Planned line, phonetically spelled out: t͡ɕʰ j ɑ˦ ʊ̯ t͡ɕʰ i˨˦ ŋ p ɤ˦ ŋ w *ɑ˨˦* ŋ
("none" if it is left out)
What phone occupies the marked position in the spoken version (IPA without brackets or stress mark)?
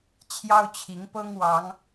ɑ˨˦